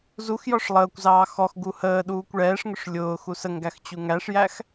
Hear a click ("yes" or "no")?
no